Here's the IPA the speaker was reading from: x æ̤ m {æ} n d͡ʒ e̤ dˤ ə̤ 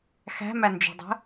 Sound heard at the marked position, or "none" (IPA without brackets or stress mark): æ